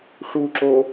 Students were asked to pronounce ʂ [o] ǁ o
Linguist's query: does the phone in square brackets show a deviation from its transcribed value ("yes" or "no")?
yes